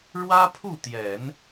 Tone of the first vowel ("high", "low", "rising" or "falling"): high